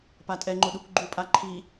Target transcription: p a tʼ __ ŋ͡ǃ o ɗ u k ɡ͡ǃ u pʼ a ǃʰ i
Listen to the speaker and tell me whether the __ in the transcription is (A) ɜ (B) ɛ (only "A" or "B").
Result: B